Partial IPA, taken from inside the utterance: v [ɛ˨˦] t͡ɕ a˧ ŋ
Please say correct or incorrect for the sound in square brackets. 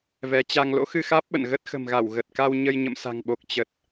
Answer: correct